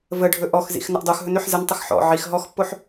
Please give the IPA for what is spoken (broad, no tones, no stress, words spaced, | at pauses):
vəɖʱɵ ʔɔxzḭx nəʔdˤoxɦɵn øħzəntˤəx ħɔ̰ ʕix ɦɔxpːoħ